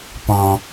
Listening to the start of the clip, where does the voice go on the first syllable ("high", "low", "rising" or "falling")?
low